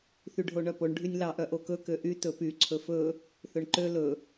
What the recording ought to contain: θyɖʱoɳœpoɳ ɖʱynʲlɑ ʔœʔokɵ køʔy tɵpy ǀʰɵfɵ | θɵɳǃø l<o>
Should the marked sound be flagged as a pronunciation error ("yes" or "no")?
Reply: yes